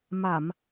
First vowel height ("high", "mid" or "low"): low